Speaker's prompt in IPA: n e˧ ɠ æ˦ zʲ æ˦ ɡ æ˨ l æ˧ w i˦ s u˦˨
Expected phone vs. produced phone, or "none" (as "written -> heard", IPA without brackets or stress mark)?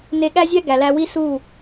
none